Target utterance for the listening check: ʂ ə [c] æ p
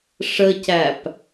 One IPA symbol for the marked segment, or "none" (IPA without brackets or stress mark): c